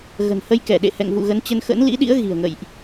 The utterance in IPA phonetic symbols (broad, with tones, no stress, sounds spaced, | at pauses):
ɣ ə̤˨˩ n h ə˧ j k ɛ˧˩ ɗ ḛ˧˨ h ɛ̰˧˨ ŋ v ṵ˧˨ ɣ ə˨˦ n t͡ɕ ə˧ n x ə̰˧˥ n l ḭ˧˥ ɗ ḭ˧˥ ə̯ ɣ i̤˨˩ ə̯ ŋ ə̰˧˨ j ʔ